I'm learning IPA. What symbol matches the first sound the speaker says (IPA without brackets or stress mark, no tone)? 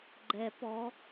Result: ɡ͡ǃ